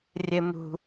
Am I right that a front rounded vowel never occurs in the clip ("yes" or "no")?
yes